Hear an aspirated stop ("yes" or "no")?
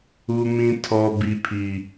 yes